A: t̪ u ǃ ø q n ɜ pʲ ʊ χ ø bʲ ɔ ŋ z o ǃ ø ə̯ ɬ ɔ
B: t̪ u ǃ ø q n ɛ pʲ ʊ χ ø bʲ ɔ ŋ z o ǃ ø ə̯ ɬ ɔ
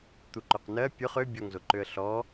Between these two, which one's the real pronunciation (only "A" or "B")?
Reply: A